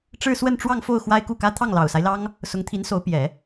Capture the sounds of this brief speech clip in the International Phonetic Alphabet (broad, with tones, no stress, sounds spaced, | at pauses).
ʈ͡ʂ ɻ̩˥˧ s w ə˥˧ n ʈ͡ʂ w ɑ˥˧ ŋ f o˥˩ ʊ̯ x w a˥ ɪ̯ k u˥˩ k ä˥ t̪ʰ ɑ˥˩ ŋ l ɑ˨˩ ʊ̯ s a˦ ɪ̯ l ɑ˥ ŋ | s ʊ˧˥ ŋ t̪ʰ i˧˥ n s o˧˥ ʊ̯ p j ɛ˨˩˦